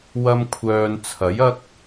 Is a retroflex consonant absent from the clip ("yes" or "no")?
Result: yes